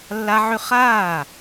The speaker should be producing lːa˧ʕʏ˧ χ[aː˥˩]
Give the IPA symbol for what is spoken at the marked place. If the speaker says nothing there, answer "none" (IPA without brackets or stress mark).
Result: aː˥˩